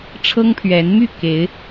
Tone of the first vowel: high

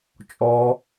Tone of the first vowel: high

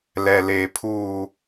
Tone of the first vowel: low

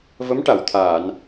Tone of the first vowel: rising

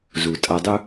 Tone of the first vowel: low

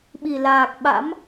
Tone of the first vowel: low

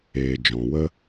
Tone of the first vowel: low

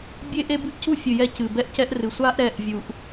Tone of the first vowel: high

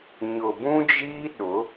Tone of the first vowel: low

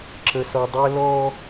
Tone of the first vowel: low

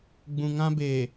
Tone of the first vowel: low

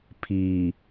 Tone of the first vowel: low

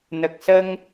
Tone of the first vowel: low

